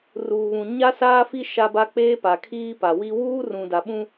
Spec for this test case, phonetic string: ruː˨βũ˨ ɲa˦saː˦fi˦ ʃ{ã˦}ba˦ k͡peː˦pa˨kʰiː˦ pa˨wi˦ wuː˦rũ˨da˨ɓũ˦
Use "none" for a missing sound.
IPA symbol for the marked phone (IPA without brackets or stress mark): a˦